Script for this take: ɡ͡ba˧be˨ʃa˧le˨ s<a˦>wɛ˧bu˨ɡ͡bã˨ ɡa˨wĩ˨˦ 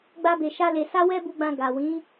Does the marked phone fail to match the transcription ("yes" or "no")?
yes